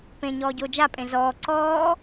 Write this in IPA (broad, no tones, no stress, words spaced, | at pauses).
pẽɲɔː ɟoːd͡ʒapʼẽ zɔː ǀɔː